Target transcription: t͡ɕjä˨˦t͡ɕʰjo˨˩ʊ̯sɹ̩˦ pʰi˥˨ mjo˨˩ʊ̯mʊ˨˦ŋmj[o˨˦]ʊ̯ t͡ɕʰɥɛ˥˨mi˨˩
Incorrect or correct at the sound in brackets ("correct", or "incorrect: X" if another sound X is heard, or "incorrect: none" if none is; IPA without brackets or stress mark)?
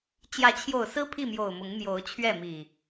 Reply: correct